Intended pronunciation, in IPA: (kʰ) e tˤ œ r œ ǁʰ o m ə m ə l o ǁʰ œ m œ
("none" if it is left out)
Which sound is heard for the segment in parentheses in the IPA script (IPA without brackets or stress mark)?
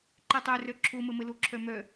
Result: ǃ